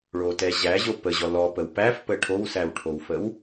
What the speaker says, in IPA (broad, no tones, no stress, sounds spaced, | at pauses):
ɭ o t ɛ ʑ æ ʑ o p ə ʑ ɔ l ɔ p ə w p æ f p ə ʈʰ o w s æ w ʈʰ o w f ə w